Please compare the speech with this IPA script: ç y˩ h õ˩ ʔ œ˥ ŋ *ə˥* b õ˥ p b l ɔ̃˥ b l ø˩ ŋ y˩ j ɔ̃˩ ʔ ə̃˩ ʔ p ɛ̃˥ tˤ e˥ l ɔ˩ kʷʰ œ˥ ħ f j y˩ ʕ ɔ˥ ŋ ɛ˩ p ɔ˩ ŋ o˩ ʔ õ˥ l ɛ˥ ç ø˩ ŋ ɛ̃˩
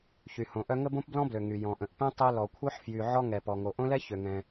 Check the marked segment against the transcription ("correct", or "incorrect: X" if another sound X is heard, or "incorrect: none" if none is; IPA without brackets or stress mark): correct